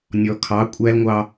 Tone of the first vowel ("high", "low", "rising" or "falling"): low